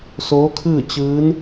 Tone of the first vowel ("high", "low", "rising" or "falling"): rising